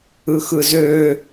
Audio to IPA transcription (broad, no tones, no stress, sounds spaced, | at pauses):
ɯ x ɯ z ø